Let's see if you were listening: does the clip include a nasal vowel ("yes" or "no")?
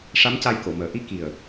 no